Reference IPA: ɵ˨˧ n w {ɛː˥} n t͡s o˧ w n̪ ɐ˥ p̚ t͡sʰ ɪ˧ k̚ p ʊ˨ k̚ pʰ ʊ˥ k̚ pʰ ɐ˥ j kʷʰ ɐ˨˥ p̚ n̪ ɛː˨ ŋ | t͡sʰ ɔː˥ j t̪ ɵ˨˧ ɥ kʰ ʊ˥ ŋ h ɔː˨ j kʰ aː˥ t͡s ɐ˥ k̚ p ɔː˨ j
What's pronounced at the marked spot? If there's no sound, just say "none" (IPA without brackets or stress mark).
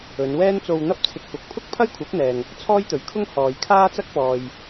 ɛː˥